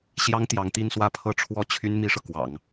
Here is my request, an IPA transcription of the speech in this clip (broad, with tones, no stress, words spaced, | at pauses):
ɕjɑ˥ŋt̪jɑ˧˥ŋ t̪i˥˧nswä˥˧ pʰɤ˥˩ʈ͡ʂʰwɔ˥t͡ɕʰy˥n mi˥ʂɤ˨kwɑ̰˨˩˦ŋ